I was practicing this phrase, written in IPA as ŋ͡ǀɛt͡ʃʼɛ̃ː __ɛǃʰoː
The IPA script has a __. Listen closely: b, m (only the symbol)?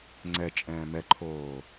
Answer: m